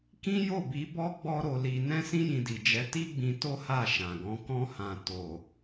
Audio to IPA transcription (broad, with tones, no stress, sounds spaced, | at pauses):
k ĩ˦ j o˦˨ b i˨˦ b ɔ˦ ɡ͡b ɔ˦ ɾ o˧ l i˧ n ɛ̃˦ s ĩ˦ j ĩ˧ d i˨ d͡ʒ ɛ˨˦ t i˦ ɡ͡b ĩ˧ t o˦ h a˦˨ ʃ ã˨ ɡ ɔ̃˨˦ k ɔ̃˦ h ã˧ t o˨